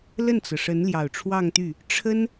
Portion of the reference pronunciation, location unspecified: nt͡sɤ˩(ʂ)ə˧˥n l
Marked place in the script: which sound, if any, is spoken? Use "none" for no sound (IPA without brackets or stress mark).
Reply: ʂ